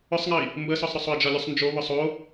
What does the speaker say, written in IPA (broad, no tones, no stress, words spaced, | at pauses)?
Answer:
ʊsˤŋəi̯ | mbəsɔsˤɾʊsˤoi̯ d͡ʒɒlʲusˤnd͡ʒoβʊ sˤo